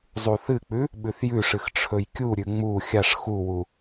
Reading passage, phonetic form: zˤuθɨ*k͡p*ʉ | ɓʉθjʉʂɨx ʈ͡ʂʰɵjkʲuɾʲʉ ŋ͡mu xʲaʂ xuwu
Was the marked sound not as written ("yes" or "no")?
no